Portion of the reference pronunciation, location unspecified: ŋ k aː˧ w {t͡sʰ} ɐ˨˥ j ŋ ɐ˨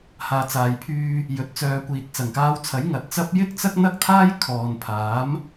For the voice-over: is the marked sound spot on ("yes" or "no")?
yes